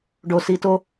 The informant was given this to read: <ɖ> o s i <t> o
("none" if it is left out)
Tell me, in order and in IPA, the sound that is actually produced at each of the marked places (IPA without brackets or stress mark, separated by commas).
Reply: ɖ, t